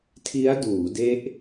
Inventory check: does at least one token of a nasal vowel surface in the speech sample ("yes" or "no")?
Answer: no